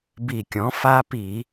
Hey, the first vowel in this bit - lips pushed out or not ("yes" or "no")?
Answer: no